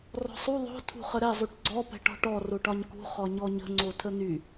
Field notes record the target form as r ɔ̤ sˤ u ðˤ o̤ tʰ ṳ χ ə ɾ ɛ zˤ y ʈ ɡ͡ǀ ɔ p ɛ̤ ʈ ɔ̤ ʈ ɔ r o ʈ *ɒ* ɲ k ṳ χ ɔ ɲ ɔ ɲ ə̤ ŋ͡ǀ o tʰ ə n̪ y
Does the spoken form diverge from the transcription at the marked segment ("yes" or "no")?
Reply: no